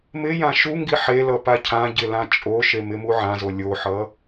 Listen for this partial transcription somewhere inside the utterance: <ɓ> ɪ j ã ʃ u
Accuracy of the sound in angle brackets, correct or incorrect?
incorrect